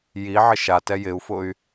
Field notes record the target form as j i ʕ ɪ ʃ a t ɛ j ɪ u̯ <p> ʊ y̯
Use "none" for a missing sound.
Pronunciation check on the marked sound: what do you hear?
f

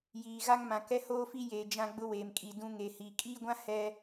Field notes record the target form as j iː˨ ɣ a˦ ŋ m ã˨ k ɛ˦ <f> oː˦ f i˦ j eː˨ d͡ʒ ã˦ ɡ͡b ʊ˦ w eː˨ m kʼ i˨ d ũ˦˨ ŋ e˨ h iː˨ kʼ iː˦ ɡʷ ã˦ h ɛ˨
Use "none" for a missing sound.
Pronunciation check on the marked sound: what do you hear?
h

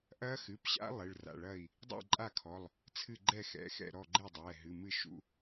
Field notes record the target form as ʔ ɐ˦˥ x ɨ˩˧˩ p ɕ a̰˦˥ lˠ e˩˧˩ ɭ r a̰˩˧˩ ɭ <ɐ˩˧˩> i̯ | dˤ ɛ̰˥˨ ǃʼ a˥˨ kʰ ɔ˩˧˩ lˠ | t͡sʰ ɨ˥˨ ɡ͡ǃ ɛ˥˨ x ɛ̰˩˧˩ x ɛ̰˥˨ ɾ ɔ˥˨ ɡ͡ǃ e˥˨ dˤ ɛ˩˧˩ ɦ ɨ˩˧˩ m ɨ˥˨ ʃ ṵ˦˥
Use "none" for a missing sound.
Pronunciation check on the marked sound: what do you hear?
ɐ˥˨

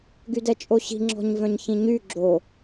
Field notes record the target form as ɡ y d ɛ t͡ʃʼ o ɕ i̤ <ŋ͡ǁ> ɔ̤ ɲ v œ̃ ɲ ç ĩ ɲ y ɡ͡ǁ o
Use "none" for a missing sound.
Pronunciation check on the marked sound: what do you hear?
ŋ͡ǁ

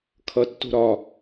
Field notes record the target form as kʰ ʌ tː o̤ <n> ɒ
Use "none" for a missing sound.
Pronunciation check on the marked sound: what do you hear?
ɾ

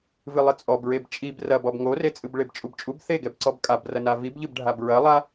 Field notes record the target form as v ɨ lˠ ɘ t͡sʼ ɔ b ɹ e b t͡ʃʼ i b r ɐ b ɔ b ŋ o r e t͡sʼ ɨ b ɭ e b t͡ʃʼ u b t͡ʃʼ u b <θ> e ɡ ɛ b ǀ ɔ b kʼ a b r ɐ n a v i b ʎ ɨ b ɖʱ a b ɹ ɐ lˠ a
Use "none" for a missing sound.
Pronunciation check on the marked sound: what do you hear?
θ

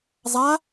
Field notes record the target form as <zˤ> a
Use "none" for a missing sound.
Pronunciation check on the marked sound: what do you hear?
zˤ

